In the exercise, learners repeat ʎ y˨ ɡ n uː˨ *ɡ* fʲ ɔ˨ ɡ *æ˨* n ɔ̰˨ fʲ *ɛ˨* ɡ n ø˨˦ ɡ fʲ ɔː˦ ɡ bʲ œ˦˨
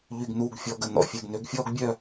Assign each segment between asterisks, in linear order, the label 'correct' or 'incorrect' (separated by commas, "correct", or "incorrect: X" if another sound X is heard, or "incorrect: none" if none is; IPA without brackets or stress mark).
correct, incorrect: ə˨, correct